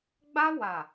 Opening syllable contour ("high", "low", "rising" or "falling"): high